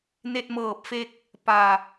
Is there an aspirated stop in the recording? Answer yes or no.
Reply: no